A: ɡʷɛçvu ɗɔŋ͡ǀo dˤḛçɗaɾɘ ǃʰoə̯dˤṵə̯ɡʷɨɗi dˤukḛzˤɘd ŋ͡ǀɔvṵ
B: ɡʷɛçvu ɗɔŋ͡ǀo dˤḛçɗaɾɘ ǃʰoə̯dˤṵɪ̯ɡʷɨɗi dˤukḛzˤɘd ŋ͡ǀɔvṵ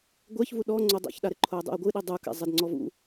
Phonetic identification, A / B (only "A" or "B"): B